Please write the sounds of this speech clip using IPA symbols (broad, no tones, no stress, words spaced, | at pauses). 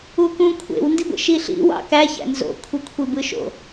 ukũ kʷʰḛw ndiɡʷḛʃiɬḭ wɑ̰kæçæ̰ nzo̰kʷʰekʷʰi bɯʃo̰